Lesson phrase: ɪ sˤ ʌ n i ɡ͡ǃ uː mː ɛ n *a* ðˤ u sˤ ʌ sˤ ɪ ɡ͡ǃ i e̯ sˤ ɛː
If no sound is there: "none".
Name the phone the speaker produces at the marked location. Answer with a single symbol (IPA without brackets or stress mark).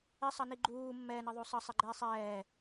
ʌ